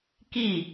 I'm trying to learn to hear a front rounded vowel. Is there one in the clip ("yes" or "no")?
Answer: no